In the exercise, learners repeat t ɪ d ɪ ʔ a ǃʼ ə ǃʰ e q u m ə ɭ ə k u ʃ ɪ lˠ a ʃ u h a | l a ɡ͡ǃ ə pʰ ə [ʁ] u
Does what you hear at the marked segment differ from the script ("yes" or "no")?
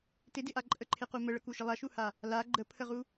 no